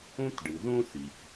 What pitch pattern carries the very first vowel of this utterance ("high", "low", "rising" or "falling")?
high